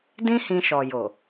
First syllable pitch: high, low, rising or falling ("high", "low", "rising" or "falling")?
high